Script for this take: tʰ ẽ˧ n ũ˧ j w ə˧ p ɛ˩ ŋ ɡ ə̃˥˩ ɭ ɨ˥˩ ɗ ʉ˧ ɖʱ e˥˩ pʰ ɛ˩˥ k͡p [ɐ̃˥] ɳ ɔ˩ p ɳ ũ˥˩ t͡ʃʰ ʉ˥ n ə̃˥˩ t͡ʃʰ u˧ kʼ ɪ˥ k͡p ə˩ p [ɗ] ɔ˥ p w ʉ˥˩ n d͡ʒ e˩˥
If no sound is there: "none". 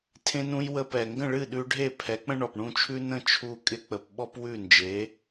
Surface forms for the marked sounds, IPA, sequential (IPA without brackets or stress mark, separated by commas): ə̃˥, ɓ